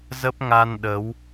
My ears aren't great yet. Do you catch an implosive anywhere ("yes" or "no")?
yes